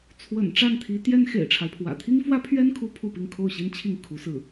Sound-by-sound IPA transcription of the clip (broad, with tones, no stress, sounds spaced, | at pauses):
t͡sʰ w ə̰˨˩ n ʈ͡ʂ a˥˩ n t̪ʰ i˧˥ t̪ j ɛ˥ n x ḛ˨˩ ɪ̯ ʈ͡ʂʰ a˦ ɪ̯ pʰ w ä̰˨˩ t̪ʰ i˥ ŋ f w ä˥ pʰ ɥ ɛ˥ n kʰ u˧˥ pʰ u˥˧ p i˥˧ ŋ kʰ o˥˩ ʊ̯ ɕ i˥ n t͡ɕʰ i˥˩ ŋ kʰ u˧˥ s ɹ̩˥˩